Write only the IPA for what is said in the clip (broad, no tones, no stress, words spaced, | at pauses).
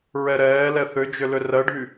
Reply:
ɹɛɾɛːlɛ θʏd͡ʒʏ lʏrɜɖʱy